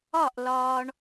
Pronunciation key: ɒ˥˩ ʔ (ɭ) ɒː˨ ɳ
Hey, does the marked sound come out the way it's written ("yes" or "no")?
no